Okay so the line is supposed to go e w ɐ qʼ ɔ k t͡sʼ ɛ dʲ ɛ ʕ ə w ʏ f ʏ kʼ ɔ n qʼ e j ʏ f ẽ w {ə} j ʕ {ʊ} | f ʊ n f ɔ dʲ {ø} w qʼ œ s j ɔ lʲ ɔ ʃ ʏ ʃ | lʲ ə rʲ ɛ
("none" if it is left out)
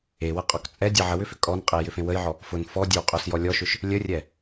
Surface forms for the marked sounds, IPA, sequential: ə, ɔ, ø

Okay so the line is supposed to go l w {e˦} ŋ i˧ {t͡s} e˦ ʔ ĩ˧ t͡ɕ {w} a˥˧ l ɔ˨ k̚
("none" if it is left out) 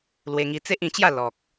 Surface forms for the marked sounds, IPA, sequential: e˧, t͡s, j

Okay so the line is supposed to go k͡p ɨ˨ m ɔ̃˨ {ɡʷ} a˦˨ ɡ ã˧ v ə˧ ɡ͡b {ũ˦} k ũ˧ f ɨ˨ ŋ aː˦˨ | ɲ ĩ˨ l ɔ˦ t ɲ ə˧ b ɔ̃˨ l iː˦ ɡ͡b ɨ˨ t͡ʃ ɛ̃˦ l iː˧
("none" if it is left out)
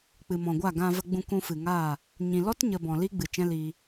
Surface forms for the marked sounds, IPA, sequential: ɡʷ, ũ˧

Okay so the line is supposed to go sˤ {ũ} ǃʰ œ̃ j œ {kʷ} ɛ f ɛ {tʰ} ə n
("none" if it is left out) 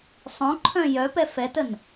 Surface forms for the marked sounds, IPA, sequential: õ, p, t

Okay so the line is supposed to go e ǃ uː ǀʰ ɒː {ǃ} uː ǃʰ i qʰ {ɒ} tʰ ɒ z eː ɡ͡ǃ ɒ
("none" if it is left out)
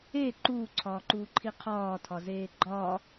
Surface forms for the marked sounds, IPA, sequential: ǃ, ɒː

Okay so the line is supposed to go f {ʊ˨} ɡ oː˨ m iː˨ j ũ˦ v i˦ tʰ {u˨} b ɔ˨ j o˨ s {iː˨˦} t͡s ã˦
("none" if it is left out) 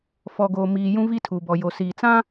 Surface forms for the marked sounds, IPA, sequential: ɔ˨, u˨, iː˨

